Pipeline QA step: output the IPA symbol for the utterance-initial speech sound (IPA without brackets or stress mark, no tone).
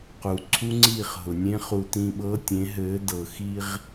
q